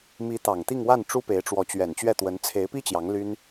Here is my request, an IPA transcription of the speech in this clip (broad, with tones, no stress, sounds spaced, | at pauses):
m i˧˥ t̪ ɑ˨˩ ŋ t̪ i˥˧ ŋ w a˥˩ n ʈ͡ʂ u˥ p e˧˥ ɪ̯ ʈ͡ʂ w ɔ˧˥ t͡ɕ ɥ ɛ˨˩ n t͡ɕ ɥ ɛ˥˩ t̪ w ə˧˥ n t͡sʰ e˧˥ ɪ̯ p i˥ t͡ɕ j ɑ˧˥ ŋ l y˥ n